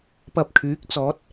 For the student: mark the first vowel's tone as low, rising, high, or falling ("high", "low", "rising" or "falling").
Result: low